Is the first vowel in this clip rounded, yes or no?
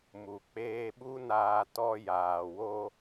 yes